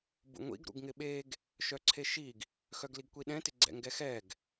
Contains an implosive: yes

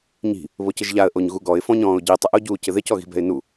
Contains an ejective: no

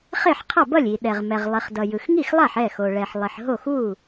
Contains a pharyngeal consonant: yes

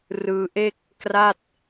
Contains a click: no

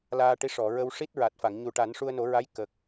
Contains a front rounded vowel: no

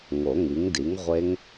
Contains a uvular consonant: yes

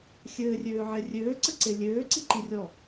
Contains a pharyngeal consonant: yes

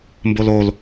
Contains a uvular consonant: no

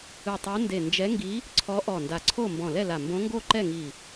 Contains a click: yes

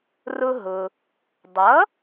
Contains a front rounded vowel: no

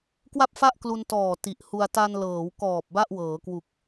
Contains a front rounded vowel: no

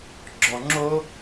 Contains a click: yes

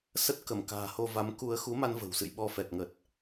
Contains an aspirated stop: no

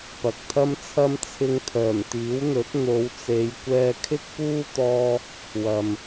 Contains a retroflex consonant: no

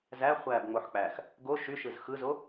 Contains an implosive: no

